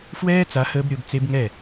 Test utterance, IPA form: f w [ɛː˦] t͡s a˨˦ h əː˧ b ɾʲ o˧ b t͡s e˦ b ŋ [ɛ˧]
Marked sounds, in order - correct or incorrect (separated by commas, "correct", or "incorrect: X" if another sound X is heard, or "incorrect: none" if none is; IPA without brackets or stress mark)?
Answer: correct, incorrect: ɛ˦˨